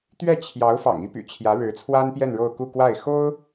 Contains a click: no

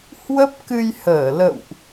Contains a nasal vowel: no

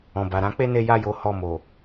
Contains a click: no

